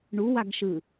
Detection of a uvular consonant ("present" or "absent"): absent